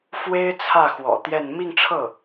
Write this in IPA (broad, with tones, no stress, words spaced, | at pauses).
fwe˥ɪ̯t͡sʰä˥˩ xwɔ̰˨˩ t̪jɛ˥˧n mi˥˧ŋʈ͡ʂʰɤ˥˩